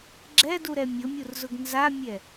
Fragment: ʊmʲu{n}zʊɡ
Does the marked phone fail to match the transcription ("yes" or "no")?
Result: yes